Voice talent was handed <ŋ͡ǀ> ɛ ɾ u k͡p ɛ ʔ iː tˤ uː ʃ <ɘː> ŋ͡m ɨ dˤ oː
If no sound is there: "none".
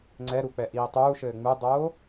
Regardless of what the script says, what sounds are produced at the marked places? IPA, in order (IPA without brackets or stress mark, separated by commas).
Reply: ŋ͡ǀ, ɘː